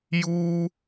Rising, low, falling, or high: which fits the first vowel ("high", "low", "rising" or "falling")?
high